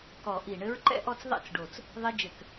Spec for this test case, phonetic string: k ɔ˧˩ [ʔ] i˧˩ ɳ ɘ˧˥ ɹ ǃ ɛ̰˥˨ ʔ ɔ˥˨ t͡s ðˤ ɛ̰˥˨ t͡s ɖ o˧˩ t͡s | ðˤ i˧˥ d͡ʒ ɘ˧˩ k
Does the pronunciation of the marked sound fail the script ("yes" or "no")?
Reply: no